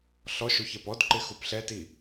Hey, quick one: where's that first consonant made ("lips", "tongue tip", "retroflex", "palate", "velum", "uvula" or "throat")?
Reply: tongue tip